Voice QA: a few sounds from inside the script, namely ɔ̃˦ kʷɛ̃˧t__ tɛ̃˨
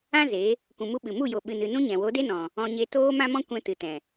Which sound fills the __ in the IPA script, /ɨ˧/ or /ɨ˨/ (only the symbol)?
ɨ˨